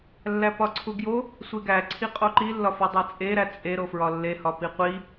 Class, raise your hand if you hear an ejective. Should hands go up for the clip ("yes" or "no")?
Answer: yes